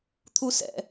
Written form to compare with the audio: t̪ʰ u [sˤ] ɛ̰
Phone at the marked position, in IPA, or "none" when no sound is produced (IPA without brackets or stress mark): s